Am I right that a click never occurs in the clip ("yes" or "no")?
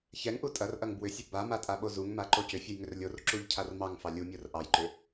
no